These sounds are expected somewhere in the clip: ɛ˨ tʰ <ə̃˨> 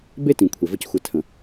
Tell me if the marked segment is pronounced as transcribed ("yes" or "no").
yes